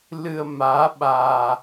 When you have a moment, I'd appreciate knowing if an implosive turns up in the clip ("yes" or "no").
yes